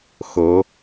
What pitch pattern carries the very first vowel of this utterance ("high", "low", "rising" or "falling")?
rising